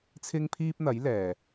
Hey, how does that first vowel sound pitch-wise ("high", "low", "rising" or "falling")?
high